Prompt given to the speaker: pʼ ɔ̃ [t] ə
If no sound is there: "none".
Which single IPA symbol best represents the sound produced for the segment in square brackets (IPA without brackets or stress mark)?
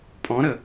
ɾ